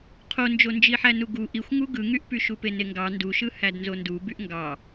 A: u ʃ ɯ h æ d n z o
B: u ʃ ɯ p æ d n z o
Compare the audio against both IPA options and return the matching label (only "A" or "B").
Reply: A